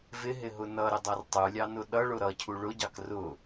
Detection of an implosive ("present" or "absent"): present